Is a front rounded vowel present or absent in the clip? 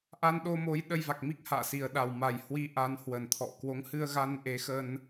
absent